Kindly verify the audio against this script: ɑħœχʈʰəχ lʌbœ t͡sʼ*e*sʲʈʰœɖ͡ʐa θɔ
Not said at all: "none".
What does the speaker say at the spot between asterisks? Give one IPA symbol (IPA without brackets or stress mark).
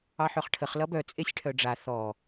e